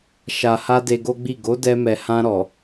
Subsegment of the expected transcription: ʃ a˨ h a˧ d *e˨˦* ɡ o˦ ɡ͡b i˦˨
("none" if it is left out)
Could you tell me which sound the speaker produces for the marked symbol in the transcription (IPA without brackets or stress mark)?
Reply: e˧